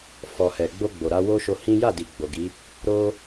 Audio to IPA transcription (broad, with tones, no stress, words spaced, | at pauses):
fɔ˨ hɛ˨ɡ͡bo˧ɡ͡bo˨ ɾa˧wo˦ʃo˧hĩ˦ ja˦˨di˨ ɡ͡bo˨ɡi˨˦ | ɾo˧